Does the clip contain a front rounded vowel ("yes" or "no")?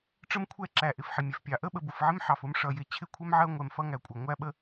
no